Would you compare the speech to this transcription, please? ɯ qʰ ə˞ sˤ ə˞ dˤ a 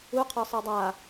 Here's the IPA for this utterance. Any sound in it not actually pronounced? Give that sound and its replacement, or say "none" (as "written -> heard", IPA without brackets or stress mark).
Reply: ɯ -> u